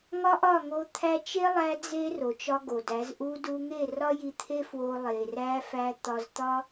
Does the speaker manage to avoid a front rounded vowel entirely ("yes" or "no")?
yes